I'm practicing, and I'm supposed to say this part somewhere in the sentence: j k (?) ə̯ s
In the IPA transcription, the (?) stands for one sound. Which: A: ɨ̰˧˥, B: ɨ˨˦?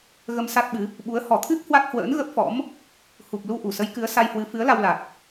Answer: B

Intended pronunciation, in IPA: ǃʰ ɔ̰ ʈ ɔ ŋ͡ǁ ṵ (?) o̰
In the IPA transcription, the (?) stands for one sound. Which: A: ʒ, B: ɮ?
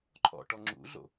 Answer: B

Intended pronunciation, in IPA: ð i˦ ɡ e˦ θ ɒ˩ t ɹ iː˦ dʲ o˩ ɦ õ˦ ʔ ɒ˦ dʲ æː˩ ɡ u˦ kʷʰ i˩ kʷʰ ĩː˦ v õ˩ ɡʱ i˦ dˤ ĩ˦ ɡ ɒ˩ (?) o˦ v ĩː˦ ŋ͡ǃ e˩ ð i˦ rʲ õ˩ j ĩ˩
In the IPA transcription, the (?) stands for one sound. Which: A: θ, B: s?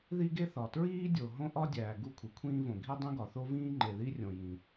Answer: A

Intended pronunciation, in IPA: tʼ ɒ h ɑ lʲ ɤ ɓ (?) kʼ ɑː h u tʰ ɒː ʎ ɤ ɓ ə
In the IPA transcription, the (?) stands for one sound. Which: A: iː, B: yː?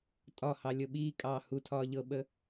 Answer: A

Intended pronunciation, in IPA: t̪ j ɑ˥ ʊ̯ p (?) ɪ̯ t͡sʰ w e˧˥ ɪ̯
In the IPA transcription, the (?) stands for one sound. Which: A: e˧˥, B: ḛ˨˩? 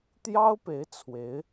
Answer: A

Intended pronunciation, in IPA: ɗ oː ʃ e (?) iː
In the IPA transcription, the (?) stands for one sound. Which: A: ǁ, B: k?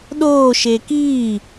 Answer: B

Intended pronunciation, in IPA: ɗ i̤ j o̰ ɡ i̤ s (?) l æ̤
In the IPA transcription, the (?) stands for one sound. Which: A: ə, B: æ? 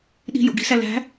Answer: B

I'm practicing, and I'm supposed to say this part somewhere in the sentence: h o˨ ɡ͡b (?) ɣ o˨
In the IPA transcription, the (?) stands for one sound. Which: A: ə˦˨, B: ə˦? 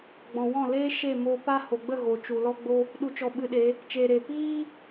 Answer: A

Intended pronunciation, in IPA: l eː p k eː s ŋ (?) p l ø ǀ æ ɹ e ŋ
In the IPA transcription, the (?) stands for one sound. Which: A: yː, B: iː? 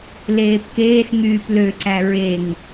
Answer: A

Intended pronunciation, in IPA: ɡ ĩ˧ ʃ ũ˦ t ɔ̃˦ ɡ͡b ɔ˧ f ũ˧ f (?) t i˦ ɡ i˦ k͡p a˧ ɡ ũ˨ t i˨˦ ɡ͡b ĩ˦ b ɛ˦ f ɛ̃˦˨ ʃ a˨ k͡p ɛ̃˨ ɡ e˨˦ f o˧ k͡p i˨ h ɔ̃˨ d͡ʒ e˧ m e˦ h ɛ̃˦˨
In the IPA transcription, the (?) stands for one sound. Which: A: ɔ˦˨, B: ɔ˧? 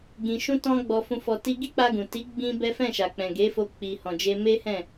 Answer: B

